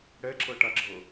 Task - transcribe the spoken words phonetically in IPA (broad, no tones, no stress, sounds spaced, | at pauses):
ɽ ɛ ǁ ɤ ʈ a ɡ͡ǁ ɤ